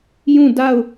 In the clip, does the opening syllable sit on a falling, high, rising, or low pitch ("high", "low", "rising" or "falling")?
falling